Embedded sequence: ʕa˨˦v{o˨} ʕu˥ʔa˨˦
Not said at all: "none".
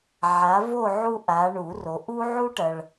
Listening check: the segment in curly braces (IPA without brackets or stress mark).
o˥˧